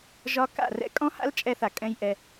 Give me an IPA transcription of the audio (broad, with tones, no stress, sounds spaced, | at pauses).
ʒ ɒ˧ k a̰˦˨ r ɛ̰˦ kʼ ɔ̃˦ h a̰˦ l t͡ʃʼ ɛ˧ θ a˨ kʼ ɛ̃˦ j ʔ ɛ˧